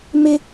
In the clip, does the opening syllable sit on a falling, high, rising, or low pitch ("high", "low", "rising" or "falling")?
high